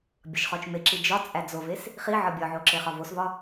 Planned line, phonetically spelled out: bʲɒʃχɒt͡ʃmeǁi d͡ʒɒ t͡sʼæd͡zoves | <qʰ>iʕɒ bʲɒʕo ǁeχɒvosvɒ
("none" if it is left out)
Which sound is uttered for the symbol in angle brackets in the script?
χ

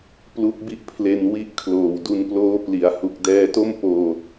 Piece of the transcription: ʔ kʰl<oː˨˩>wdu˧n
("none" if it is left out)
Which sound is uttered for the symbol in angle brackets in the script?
oː˨˩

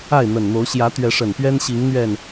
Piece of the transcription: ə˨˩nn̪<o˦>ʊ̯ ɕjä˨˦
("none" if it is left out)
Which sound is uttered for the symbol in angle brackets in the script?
o˨˦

